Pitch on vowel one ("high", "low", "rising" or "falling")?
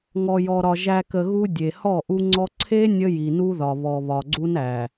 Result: low